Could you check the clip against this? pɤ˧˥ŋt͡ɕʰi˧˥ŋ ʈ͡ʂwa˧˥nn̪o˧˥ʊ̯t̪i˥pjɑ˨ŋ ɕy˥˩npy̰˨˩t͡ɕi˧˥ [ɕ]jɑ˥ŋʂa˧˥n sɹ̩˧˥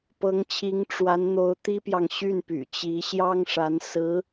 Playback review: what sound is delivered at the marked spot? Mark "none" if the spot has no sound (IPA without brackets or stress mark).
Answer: ɕ